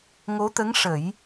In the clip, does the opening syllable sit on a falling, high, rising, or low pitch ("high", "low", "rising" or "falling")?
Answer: rising